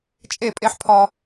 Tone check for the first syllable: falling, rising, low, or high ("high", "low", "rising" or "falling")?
falling